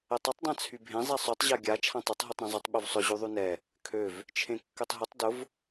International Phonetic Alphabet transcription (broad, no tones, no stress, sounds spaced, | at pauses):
ɛ tˤ y tˤ dˤ ã t͡sʰ y bʱ ẽ zˤ ɛ sˤ y tˤ ʑ a ɡʲ a t͡ʃʰ ã tˤ y tˤ ɦ y tˤ ɾ ã zˤ y tˤ ɓ y v sˤ ʊ ʑ y ðˤ y n ɛ | kʰ ø v | t͡ʃʰ ẽ kː ø tˤ ɦ ʊ tˤ d ʊ v